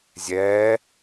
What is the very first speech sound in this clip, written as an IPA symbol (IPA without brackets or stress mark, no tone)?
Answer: zʲ